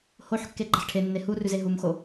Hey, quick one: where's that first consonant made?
throat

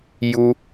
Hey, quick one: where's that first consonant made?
palate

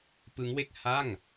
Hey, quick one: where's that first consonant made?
lips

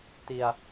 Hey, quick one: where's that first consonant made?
tongue tip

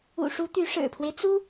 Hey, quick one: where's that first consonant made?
retroflex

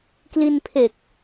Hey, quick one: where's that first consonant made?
velum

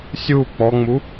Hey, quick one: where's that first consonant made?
tongue tip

